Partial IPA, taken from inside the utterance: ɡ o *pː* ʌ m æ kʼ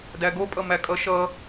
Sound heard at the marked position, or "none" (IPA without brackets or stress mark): pʼ